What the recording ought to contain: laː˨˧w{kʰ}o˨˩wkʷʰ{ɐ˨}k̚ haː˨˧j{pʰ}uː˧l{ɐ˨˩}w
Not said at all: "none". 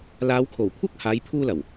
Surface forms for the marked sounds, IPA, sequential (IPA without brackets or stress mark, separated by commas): kʰ, ɐ˥, pʰ, ɐ˨˩